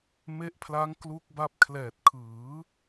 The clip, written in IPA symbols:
m e˦˥ ʔ pʰ l a˦˥ ŋ k l u˦˥ k̚ b a˦˥ p̚ kʰ l ɛː˨˩ t̚ kʰ ɯː˩˦

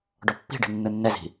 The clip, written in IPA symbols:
ɖ ɔ pː i̤ ɖ i̤ nː ɯ nː ɛ z i̤

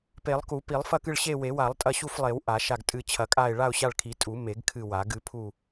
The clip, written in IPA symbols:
p e˨˩˦ lˠ k u˨˩˦ p i˨˩˦ lˠ f ɐ˦˨ k ɨ˦˨ ɭ ɕ e˦˨ w e˨˩˦ w a˨˩˦ lˠ tʼ ɐ˦˨ ɕ u˦˨ f lˠ e˨˩˦ w ʔ a˨˩˦ ʃ a˦˨ ɡ tʼ ɨ˦˨ t͡ɕʰ ɐ˨˩˦ kʼ a˦˨ ɪ̯ ɭ a˦˨ ʊ̯ ɕ a˦˨ ɭ kʰ i˨˩˦ tʼ u˨˩˦ m e˨˩˦ ɡ kʰ ɨ˦˨ w a˨˩˦ ɡ ɨ˨˩˦ pʰ u˦˨

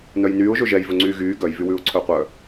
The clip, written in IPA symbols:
n œ j n yː ʊ̯ ʒ ɵ ʒ ɛ j v ɵ ŋ͡ǀ yː ɣ yː ɡ œ j v y w ʉː ʊ̯ ǀʰ œ qʷ œ

